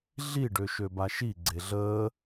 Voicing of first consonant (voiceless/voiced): voiced